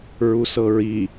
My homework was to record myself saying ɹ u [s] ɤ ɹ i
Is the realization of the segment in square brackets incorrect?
no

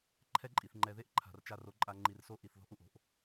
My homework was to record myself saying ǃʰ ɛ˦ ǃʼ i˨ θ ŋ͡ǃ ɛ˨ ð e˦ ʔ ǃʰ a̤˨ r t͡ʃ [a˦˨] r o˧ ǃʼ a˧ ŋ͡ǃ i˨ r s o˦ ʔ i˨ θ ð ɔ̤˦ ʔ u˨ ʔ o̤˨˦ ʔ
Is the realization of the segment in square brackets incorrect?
no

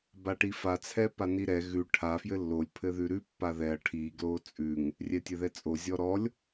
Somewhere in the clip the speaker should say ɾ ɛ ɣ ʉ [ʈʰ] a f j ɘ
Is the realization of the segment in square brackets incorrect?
no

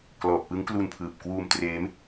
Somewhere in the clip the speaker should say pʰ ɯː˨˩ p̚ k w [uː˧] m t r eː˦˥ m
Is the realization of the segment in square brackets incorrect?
no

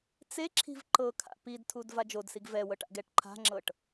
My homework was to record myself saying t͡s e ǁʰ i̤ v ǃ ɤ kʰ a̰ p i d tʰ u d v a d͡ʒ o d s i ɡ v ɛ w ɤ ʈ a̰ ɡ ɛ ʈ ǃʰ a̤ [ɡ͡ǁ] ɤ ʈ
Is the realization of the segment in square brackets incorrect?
yes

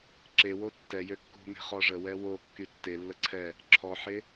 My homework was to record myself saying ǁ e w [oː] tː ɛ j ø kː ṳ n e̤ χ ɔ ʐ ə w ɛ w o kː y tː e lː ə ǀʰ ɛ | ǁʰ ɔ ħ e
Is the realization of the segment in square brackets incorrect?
yes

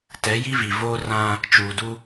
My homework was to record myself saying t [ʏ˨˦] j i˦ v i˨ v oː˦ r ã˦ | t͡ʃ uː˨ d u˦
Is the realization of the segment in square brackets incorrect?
yes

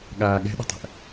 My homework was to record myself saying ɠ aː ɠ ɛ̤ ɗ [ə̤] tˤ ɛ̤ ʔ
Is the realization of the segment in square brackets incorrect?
no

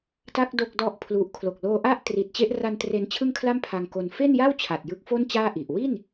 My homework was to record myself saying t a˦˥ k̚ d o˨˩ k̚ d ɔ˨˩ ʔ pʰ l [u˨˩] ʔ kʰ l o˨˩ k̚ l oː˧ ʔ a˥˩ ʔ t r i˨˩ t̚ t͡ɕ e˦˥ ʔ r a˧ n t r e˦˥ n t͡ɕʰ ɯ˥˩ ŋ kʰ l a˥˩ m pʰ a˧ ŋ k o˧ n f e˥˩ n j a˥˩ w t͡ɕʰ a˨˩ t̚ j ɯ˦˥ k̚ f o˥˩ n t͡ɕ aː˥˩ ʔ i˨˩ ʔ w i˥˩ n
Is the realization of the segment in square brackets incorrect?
no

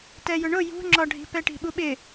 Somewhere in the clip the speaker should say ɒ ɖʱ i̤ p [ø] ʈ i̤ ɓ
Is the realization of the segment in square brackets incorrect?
yes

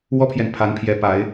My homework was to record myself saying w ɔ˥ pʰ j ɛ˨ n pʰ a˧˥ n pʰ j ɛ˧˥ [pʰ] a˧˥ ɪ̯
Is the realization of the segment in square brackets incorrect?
yes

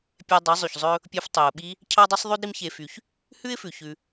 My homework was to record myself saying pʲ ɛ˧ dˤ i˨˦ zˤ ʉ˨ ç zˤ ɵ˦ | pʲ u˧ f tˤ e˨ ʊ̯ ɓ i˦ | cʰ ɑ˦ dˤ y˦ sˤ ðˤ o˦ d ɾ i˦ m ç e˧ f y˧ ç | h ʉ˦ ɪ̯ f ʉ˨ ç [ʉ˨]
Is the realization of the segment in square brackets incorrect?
yes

